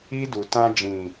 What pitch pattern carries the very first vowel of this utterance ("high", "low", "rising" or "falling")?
high